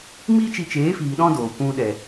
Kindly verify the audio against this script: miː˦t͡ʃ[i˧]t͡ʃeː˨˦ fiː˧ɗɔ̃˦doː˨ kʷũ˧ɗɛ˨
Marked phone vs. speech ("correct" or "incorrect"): correct